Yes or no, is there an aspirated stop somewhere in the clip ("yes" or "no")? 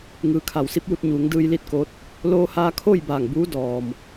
yes